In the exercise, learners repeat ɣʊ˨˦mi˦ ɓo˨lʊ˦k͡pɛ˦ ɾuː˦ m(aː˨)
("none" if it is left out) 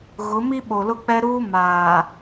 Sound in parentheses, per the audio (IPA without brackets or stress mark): aː˨